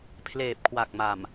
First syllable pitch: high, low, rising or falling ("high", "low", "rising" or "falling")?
low